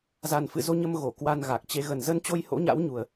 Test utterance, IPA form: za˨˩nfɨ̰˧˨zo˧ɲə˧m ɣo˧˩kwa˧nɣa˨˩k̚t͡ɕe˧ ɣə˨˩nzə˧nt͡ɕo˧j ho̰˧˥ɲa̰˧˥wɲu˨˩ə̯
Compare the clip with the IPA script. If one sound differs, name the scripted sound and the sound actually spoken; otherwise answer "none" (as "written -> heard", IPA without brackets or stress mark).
none